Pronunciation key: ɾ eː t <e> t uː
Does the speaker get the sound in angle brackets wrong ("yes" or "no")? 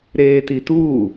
yes